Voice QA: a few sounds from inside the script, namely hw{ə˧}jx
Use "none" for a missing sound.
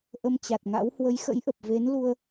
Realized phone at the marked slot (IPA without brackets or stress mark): ə˨˦